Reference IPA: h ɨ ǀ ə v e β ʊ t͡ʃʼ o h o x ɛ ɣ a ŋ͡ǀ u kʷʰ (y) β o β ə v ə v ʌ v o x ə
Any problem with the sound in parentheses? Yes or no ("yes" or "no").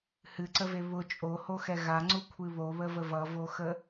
yes